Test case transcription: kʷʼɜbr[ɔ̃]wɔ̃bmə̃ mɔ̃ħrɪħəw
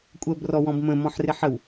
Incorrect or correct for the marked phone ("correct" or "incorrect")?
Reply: incorrect